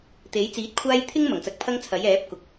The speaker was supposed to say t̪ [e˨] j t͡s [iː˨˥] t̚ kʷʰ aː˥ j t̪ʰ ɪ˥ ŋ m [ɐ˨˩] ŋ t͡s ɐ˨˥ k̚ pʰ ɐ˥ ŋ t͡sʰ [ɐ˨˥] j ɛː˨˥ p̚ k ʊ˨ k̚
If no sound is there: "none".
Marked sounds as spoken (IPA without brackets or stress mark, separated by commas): e˨˥, iː˨˥, ɐ˨˩, ɐ˨˥